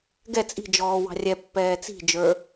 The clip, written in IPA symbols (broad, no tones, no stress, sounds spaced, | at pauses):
ɡ ɛ t͡sʼ i̤ d͡ʒ ɔː w ɑ̤ rʲ ɛ pː ɛː t͡s i̤ d͡ʒ ə˞